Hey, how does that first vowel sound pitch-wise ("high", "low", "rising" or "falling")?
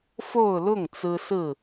falling